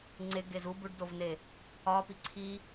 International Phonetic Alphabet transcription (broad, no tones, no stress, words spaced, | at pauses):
ŋ͡ǀeɡez u buɖdovne | ɒpi ǀʰi